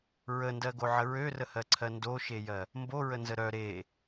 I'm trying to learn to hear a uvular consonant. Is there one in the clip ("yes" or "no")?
no